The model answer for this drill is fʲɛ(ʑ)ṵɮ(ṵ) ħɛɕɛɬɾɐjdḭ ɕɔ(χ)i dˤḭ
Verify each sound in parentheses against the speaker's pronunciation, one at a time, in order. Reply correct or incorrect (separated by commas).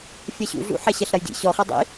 incorrect, correct, correct